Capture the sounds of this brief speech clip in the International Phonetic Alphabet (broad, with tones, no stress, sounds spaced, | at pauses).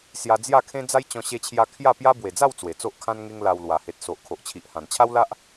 s j a˧ d͡z j a˥˧ kʰ ẽ˦ d͡z a˦ j t͡ɕ ɔ̃˧ ɕ e˧ t͡ɕʰ j a˧ kʰ j a˥˧ p j a˦ b w e˨˩ d͡z a˥˧ w t͡s w e˨˩ t͡s o˦ ʔ kʰ ã˦ n ŋ e˦ ŋ l a˧ w l w a˨˩ h e˨ t̚ s o˨ ʔ kʰ o˨ ʔ t͡ɕʰ i˨ ʔ h ã˨˩ n t͡ɕʰ a˦ w l a˦ ʔ